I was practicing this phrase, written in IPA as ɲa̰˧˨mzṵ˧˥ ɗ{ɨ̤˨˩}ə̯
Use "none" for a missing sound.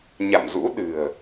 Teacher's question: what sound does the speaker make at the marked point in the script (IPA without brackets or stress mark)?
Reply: ɨ̤˨˩